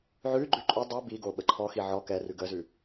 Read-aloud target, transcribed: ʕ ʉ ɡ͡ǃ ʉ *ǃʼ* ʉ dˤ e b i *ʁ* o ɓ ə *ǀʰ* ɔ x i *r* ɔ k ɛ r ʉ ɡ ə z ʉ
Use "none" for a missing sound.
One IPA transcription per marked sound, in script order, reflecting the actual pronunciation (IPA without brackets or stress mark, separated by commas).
ǃʼ, ɡ, ǃʰ, ʕ